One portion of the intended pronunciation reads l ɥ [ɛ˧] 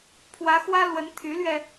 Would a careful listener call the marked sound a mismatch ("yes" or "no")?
no